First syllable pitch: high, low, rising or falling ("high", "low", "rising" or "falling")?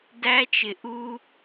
high